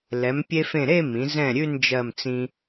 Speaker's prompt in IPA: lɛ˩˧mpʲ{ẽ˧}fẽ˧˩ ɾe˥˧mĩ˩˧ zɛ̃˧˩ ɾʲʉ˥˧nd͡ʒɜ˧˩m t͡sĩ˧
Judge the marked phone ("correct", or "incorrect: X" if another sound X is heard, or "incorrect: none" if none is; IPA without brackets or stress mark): incorrect: e˧